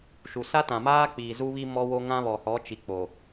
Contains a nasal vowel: yes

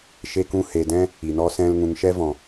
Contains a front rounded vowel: no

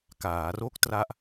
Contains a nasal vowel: no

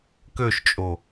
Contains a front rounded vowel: yes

